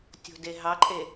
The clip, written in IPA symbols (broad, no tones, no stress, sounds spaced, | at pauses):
tʲ o̤ d e ɦ ɑ ǃʼ e